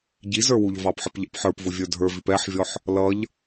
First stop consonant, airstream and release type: plain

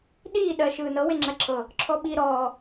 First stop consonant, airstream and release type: implosive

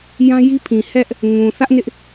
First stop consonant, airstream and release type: aspirated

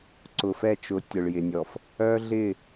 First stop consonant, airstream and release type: click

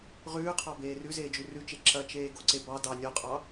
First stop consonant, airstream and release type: aspirated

